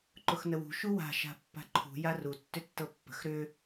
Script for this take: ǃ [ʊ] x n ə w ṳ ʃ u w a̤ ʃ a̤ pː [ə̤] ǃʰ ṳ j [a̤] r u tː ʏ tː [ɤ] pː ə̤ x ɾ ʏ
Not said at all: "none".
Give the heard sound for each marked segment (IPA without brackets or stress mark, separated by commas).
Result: ʊ, a̤, a, ɤ